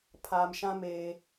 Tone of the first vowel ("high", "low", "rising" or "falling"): low